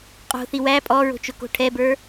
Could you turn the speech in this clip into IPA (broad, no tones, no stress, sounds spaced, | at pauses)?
qʼ o̤ θ i w æ pʼ ɔ ɹ o̤ t͡ʃ ʊ k o̤ ʈʰ ɛ b ə˞